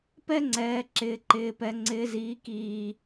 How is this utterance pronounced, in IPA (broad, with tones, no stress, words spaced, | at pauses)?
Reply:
pɛ˦ŋ͡ǀɛː˨ ǁɪː˨ǃɪː˨pɛ˨ ŋ͡ǀɪː˨ziː˨kiː˨